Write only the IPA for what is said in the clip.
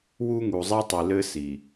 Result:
w u˦ ŋ u˨ zˤ ɛ˦ tˤ i˨ l ɘ˦ s i˨

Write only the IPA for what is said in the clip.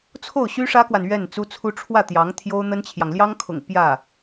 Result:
t͡sʰ o˥˩ ʊ̯ ɕ y˥ ʂ ä˥ k w a˨ n ɥ ɛ˥˩ n t͡s u˥ t͡sʰ u˥ ʈ͡ʂʰ w ä˥˩ t̪ j ɑ˧˥ ŋ t̪ʰ j o˥ ʊ̯ n̪ ə˥ n t͡ɕʰ j ɑ˨ ŋ l j ɑ˥ ŋ kʰ ʊ̰˨˩ ŋ p j ä˥˩

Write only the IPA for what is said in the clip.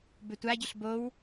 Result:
b ʏ tʷ a ɟ ʏ ɬ b o w

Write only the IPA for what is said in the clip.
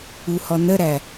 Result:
u h ɔ n ə ɾ æ

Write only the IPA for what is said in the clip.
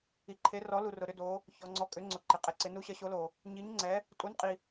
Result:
i˨ ǃʰ e˨˥ r ɔ˨˥ l u˨ r ʊ˨ ɾ ʏ˨˥ d o˨˥ | ç ɔ˨ ŋ͡ǀ ɔ˨˥ kʼ ʏ˨˥ ŋ͡ǀ ʊ˨ ǃ ɪ˨ qʼ ɪ˨˥ ǀ ɪ˨˥ n u˨˥ ɕ ɐ˨˥ ɕ o˨˥ l o˨ | ɲ i˨˥ ɲ ŋ͡ǀ ɛ˨˥ | tʼ u˨˥ n qʼ i˨

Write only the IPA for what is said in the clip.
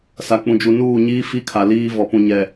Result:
s a˨ k͡p ũ˨ d͡ʒ u˨ n uː˦˨ ɲ iː˦ f i˦ kʰ a˨ l iː˦ v ɔ˨ p ũ˨ ɲ ɛ˨

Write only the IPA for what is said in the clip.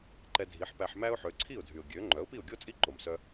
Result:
ǃ ɛ˧ dʱ i˩˥ ħ p æ˧ ħ m æ˥ ʊ̯ ħ ø˩˥ ǀʰ i˥˩ ʊ̯ dʱ y˩ ʊ̯ ɡʲ ø˩˥ ŋ͡ǃ œ˩˥ ʊ̯ p i˥˩ ʊ̯ ɡʲ o˥ t͡sʼ i˥˩ ǃ o˩ m s œ˧

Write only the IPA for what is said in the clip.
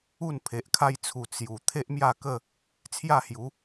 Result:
u˥˧ n pʰ e˨ ʔ kʰ a˧ j t͡sʰ u˨˩ t͡s j u˨˩ t̪ʰ e˦ ʔ m j a˥˧ k ə˥˧ | t͡sʰ j a˥˧ h j u˨˦

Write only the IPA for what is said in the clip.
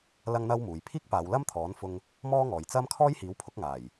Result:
l ɐ˥ ŋ n̪ ɐ˥ w m uː˨ j pʰ iː˥ k̚ p aː˨˧ w l ɐ˥ m t̪ʰ ɔː˨˥ n f ʊ˧ ŋ | m ɔː˥ ŋ ɔː˨ j t͡s ɐ˥ m kʰ ɔː˥ j h iː˨˥ w pʰ ʊ˨˥ k̚ ŋ aː˨˩ j

